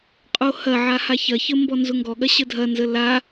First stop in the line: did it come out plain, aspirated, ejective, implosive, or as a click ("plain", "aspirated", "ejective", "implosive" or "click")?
ejective